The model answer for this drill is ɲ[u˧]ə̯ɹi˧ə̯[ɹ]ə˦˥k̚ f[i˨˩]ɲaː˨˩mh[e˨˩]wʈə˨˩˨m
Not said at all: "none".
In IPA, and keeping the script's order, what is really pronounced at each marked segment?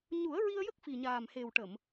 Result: u˨˩˦, j, i˨˩, e˨˩

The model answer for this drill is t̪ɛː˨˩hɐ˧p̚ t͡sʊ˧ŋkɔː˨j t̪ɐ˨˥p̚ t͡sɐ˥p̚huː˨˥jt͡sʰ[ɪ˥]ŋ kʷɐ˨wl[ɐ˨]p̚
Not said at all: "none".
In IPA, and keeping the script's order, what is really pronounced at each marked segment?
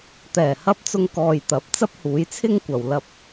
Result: ɪ˥, ɐ˧

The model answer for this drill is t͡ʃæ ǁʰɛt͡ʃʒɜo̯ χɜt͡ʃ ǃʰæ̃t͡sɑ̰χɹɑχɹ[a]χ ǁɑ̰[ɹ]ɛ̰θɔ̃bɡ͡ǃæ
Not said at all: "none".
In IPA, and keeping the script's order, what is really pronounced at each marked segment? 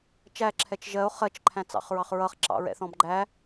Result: ʌ, ɹ

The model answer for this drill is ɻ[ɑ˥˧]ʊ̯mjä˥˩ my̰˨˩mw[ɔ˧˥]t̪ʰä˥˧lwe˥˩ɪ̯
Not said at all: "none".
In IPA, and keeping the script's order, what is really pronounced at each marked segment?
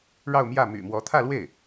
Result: ɑ˥˧, ɔ˧˥

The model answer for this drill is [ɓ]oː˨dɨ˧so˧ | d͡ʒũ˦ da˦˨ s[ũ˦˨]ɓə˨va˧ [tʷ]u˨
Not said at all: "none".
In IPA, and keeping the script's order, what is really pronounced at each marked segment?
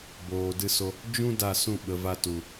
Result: b, ũ˦˨, t

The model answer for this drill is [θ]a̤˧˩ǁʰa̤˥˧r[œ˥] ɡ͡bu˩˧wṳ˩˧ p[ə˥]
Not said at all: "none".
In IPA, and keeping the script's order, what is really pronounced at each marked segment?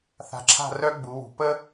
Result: θ, œ˥, ə˥

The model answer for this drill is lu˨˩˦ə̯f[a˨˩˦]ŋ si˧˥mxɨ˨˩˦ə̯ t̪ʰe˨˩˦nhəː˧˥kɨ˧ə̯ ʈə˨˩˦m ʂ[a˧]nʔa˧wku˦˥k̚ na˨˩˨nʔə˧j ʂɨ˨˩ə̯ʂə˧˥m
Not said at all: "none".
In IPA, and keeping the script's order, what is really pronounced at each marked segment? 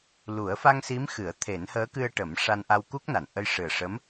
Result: a˧, a˧

